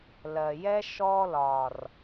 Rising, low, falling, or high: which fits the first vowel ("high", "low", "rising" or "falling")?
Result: low